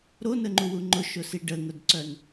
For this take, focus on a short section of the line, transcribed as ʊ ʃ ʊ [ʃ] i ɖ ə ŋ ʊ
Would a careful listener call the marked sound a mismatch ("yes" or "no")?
yes